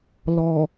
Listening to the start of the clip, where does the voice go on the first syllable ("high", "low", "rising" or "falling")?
low